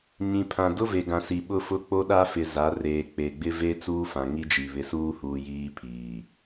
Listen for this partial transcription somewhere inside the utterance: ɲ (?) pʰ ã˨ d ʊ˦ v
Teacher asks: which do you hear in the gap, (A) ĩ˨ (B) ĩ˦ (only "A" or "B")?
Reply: A